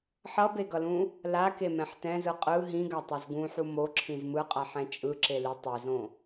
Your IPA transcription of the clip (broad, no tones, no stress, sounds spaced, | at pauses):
ħ ʌ b e ɡ ʌ l ũ | l a k e m ɛ̃ ħ t ɛ̃ z ɯ qʼ ɯ ɦ ĩ ɡ a tˤ ɛ z ɡ ũ ħ u m o ǁʰ ĩ z m ɯ qʼ a ħ ɛ̃ t͡ʃʼ ɯ ǁ e l i tˤ e z õ